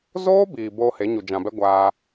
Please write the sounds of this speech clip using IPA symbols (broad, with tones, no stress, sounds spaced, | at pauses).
z oː˦ b iː˨ b oː˧ h e˨˦ ɲ u˨ d͡ʒ ã˨ b ɛ˦ ɡʷ aː˧